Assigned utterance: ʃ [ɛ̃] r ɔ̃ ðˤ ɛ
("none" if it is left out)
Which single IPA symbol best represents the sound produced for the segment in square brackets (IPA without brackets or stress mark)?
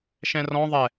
ɛ̃